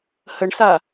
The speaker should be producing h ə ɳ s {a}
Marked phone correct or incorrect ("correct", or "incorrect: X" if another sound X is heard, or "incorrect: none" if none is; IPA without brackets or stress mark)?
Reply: correct